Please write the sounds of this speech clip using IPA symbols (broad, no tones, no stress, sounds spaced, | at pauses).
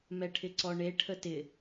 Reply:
m ɛ ʈʰ ɪ ǀ ɔ ɳ e ʈʰ ə t ɪ